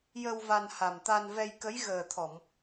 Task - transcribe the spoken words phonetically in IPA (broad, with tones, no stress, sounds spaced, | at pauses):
j ə˧ w v a˧ n h a˨˩ m t̪ a˧ n v ɛ˧ j k ə˧˥ j ɣ əː˨˩ t̪ʰ ɔ˨˩˨ m